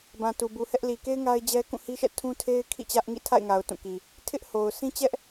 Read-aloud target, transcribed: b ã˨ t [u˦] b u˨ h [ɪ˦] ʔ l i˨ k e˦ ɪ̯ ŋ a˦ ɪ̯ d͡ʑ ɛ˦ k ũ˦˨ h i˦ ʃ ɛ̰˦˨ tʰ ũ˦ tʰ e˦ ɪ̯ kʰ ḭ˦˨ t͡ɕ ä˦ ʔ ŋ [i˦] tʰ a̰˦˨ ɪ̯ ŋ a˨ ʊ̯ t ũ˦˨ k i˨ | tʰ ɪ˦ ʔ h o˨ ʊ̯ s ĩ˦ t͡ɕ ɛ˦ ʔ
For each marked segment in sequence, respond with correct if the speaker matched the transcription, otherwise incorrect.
incorrect: u˨, incorrect: ɛ˦, incorrect: ḭ˦˨

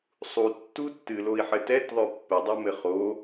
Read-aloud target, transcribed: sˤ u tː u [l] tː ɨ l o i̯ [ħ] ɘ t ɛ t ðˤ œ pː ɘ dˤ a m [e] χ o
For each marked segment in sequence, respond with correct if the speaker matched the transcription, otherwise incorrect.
incorrect: none, correct, incorrect: ɘ

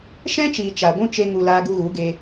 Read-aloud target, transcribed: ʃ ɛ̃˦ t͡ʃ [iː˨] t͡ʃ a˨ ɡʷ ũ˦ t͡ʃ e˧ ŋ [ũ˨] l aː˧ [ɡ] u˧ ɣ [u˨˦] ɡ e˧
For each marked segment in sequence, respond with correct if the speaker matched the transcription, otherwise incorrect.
correct, incorrect: u˨, correct, correct

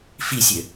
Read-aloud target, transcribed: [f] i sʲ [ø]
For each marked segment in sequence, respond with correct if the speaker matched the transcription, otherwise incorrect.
correct, correct

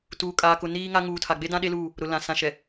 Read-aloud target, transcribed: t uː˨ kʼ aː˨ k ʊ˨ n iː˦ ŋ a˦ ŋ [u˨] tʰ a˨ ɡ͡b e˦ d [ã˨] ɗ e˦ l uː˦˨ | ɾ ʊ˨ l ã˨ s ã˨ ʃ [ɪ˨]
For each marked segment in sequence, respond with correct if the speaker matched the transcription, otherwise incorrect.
incorrect: uː˨, incorrect: ã˦, incorrect: ɛ˨

